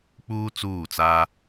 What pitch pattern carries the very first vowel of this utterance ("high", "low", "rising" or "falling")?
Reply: high